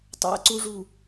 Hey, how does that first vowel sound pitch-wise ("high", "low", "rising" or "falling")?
low